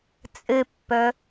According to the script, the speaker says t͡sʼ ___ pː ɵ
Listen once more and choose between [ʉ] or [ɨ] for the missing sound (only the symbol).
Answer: ɨ